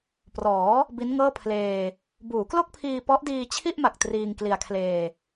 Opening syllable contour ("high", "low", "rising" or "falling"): rising